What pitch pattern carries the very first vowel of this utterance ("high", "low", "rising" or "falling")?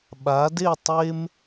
rising